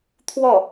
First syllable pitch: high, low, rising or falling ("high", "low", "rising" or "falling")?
falling